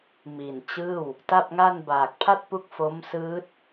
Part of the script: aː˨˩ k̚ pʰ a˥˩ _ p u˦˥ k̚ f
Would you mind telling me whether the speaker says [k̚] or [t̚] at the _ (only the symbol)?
t̚